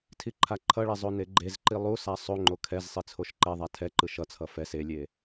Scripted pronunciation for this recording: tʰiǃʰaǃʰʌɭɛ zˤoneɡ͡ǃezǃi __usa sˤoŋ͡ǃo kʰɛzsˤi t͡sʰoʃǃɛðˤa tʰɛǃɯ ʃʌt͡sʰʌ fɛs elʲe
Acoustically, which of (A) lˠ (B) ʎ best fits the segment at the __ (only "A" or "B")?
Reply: A